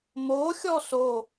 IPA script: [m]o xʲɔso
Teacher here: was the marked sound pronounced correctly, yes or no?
yes